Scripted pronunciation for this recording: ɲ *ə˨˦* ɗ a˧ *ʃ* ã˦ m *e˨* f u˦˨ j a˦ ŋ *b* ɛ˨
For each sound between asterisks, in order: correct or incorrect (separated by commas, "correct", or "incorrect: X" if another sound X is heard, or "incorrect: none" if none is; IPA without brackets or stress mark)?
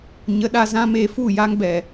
correct, incorrect: z, incorrect: e˧, correct